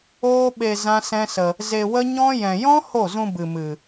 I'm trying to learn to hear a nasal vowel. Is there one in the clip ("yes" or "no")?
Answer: yes